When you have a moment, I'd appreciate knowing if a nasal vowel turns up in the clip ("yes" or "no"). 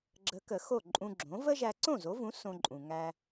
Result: yes